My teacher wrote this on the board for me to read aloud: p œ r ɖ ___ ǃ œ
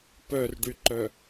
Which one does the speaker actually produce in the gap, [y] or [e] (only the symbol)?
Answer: y